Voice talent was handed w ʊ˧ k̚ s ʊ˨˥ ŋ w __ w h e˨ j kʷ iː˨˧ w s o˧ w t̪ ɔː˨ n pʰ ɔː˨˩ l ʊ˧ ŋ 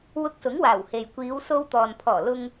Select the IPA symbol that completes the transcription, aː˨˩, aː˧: aː˨˩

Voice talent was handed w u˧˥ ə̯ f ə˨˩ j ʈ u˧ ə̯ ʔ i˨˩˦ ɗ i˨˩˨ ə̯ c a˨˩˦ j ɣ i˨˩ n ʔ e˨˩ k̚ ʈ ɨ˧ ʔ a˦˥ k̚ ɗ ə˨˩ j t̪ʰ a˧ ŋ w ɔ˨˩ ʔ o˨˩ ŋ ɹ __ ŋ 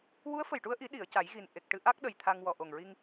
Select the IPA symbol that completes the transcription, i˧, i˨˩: i˧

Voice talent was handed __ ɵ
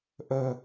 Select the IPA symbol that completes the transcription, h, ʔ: ʔ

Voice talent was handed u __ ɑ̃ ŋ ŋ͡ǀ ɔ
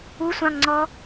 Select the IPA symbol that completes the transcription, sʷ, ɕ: sʷ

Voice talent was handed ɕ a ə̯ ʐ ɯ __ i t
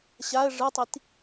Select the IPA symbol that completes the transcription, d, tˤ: tˤ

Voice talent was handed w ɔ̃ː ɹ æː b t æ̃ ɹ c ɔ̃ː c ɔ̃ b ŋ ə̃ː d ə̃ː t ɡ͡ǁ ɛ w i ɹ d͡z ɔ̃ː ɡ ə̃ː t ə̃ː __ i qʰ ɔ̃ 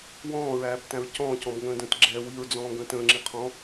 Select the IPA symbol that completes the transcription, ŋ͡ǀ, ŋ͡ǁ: ŋ͡ǁ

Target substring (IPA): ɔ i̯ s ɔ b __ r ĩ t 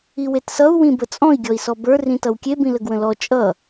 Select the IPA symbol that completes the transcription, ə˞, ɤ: ə˞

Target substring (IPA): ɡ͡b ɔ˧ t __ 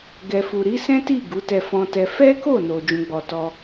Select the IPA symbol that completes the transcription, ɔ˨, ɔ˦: ɔ˦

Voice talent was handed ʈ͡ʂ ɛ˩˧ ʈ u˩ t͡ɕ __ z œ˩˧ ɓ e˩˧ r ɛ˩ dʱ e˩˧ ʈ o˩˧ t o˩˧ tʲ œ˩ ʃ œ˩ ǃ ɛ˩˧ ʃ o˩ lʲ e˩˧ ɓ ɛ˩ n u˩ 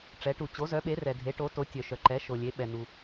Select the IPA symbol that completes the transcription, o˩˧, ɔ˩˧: o˩˧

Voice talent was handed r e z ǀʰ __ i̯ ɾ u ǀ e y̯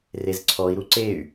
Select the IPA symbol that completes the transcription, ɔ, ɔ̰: ɔ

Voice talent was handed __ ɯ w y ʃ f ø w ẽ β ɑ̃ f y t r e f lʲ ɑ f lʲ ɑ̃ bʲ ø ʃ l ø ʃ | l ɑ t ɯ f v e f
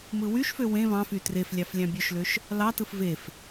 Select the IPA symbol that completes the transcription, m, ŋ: m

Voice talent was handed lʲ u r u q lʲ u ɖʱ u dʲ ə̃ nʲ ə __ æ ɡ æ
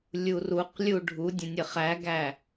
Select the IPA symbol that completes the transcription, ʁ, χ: χ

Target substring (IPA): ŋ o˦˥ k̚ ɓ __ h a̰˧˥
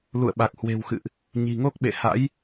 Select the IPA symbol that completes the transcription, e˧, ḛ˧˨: ḛ˧˨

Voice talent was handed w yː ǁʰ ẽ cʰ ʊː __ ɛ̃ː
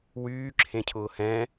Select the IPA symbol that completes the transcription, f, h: h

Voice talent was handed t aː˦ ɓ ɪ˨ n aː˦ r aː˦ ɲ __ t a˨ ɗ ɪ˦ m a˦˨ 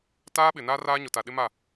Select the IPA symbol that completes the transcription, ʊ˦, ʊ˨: ʊ˨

